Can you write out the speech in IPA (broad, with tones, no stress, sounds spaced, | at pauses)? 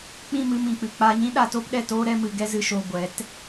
k͡p ĩ˦˨ m ɨ˧ m ĩ˨ k͡p ɨ˨ k͡p a˧ ɲ ĩ˦ ɗ a˧ t o˦ p ɗ ɛ˦˨ t oː˦ ɾ ɛ˦ m ɨ˧ ɡ ɛ˦ z ɨ˧ ʃ o˧ ɡʷ ɛ˨˦ t